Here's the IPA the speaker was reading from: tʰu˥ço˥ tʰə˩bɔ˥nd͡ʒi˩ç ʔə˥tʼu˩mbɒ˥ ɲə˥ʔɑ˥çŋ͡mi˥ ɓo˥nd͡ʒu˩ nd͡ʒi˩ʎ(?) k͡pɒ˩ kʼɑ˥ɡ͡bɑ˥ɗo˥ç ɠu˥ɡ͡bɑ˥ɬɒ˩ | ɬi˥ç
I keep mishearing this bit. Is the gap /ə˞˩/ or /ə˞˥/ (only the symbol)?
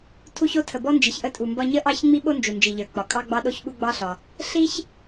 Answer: ə˞˩